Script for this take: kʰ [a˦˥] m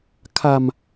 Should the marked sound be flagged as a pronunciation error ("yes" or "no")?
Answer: yes